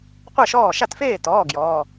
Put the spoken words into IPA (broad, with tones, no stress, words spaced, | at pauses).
qʷɜ˥˩ʃɔː˥˩ ʃa˥˩tfeː˥˩tɔː˩˧˩ ɡjɔː˩˧˩